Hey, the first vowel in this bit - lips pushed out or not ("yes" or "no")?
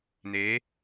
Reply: no